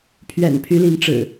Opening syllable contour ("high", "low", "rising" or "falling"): low